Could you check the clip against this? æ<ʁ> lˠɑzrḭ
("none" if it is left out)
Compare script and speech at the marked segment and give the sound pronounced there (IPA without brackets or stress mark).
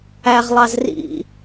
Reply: ʁ